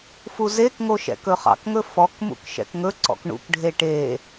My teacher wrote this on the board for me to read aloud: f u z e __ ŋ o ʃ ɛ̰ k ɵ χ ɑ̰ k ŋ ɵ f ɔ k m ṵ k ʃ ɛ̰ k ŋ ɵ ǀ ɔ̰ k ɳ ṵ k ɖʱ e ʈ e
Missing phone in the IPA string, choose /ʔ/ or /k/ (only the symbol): k